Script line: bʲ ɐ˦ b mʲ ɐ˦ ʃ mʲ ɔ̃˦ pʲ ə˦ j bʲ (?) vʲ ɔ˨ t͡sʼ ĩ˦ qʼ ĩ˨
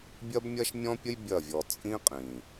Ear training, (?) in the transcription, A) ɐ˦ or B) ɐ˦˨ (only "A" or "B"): B